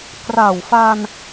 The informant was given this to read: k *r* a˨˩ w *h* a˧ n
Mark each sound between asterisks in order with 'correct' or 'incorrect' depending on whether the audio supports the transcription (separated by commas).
correct, incorrect